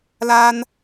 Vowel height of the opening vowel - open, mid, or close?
open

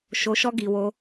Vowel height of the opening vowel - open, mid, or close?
mid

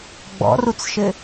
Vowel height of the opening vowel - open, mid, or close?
mid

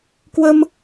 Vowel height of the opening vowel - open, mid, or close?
mid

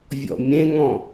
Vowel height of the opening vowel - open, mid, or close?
mid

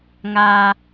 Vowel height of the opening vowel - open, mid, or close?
open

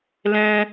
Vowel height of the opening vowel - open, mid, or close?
mid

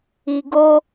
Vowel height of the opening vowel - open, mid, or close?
close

